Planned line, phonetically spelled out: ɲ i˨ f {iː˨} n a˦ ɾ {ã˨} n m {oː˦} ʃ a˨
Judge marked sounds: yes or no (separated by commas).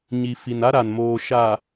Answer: no, no, no